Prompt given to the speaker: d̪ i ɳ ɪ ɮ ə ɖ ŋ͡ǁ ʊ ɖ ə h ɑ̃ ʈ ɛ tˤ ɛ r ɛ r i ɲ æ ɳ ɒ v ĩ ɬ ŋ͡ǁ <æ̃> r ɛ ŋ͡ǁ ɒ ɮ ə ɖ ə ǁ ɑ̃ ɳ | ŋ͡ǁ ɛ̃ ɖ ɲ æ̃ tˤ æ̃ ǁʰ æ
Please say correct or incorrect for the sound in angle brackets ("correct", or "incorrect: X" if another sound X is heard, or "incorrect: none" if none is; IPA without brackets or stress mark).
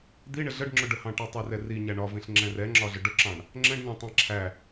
incorrect: ɛ̃